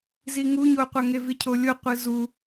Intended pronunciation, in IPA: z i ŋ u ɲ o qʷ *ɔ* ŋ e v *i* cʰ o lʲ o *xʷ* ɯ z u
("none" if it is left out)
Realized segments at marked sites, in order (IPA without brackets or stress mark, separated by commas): ʌ, i, qʷ